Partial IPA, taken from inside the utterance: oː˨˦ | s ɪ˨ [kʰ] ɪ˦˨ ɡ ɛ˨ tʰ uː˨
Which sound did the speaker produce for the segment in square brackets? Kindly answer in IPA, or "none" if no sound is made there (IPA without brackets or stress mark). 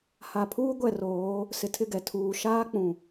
tʰ